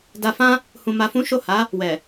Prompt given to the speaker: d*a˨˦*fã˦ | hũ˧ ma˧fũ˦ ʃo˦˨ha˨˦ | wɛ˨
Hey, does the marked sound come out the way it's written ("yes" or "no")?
no